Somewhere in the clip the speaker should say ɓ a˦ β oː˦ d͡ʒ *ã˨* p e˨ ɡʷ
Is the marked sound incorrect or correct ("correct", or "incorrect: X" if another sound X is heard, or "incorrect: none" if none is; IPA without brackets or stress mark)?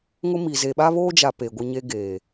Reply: incorrect: a˨